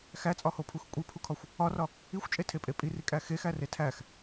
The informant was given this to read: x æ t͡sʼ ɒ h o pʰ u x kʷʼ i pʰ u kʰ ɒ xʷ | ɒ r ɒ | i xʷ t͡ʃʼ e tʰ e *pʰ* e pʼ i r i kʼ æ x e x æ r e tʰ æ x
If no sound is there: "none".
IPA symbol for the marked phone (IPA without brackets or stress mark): pʼ